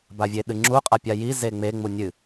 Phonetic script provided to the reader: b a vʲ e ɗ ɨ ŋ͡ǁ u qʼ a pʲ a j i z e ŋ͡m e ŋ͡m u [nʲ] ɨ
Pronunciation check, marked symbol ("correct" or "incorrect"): correct